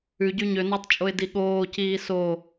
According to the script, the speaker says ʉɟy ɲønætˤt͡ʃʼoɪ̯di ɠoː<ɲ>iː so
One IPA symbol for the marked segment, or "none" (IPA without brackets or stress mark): c